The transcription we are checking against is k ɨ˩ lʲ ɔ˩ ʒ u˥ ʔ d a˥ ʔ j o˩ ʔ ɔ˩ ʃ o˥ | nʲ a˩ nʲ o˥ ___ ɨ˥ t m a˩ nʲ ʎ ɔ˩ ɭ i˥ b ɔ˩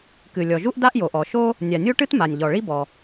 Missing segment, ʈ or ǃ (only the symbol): ʈ